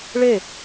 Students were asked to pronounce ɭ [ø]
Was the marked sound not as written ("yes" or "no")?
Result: yes